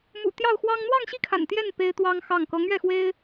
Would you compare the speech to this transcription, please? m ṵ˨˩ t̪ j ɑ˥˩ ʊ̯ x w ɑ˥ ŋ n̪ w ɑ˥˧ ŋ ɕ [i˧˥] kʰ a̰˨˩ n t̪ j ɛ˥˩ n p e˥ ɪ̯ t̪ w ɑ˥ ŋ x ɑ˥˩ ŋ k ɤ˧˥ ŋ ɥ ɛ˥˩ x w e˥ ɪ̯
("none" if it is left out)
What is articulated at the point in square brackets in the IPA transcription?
i˥˩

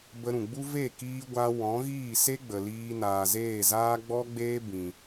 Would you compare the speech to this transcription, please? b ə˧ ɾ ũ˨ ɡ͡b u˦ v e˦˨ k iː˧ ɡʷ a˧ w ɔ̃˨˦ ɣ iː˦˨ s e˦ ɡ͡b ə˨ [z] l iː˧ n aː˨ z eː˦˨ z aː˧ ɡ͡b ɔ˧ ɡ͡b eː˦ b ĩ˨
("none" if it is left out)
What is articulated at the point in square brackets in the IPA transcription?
none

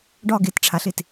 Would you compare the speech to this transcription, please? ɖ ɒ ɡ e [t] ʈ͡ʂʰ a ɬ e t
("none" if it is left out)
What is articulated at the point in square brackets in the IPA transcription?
t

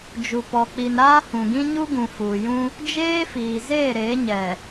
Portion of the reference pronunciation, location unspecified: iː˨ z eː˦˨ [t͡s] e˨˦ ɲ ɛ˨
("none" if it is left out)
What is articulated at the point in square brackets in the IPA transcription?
ɾ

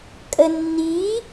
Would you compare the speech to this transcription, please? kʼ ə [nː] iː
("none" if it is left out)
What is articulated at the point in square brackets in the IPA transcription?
nː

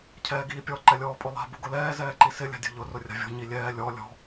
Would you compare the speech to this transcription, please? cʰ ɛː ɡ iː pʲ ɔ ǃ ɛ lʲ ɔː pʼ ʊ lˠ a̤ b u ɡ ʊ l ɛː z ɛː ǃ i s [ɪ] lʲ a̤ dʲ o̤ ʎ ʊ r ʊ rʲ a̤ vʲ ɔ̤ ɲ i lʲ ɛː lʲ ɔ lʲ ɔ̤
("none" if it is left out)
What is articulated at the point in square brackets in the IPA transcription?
ɪ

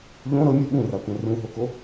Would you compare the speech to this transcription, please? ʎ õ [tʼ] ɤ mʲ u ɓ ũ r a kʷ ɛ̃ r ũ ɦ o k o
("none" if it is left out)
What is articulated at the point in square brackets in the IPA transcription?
ɾ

